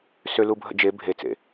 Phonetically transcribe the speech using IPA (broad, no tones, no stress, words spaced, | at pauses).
sølubʱə̰ d͡ʒe bʱet͡sḛ